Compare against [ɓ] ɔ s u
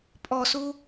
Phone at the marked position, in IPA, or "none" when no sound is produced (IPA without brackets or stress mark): pʼ